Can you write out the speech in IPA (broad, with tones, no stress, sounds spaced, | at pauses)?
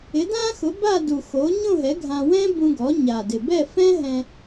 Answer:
ɪ˩˥ d ã˥ x ʊ˩˥ b a˥˧ d u˨˩ x o˩˥ ɲ õ˥˧ ɦ ɛ˩˥ ɡʱ ã˧ w ɛ̃˥ b ũ˧ ɡ ɔ˩˥ ɲ a˨˩ d ɪ˨˩ b ɛ˥˧ f ɛ̃˥ ɦ ɛ̃˧